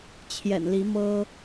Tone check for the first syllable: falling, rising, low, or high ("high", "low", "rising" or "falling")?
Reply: low